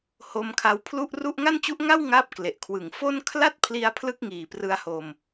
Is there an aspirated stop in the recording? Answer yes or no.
yes